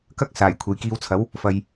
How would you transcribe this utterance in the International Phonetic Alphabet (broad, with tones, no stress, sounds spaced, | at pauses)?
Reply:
k ɐ˥ k̚ s aː˨˩ j kʷʰ e˨ j k iː˧ w t͡sʰ ɐ˨˥ w | f ɐ˧ j